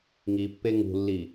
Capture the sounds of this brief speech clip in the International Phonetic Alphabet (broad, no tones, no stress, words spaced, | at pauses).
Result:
ŋipːe ŋṳlːi